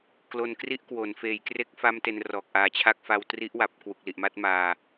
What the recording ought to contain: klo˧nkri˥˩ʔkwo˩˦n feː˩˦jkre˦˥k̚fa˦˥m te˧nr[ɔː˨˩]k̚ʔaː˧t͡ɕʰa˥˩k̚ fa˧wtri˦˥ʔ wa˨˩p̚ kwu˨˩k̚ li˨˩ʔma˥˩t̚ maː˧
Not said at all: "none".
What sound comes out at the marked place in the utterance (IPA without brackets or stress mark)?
ɔː˨˩